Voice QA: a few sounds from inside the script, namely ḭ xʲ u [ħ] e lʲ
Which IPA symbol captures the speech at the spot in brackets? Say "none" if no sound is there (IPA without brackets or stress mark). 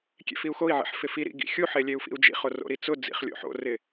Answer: ħ